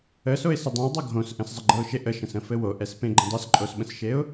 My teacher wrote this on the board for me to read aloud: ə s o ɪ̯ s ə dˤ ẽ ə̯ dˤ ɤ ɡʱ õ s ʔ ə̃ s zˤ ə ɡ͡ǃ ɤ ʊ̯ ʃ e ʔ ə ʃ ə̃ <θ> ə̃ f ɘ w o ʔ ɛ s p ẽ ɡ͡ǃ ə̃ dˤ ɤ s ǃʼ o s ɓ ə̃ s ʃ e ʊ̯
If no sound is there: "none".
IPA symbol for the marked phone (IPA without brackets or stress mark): s